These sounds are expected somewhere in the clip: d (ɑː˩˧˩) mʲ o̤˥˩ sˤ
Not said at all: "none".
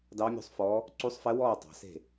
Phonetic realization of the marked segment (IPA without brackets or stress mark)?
ɑː˧˥